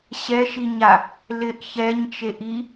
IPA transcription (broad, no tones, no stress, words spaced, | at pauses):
ɕɛʃiɲa | lɪʔ çɛɲt͡ʃe ʔi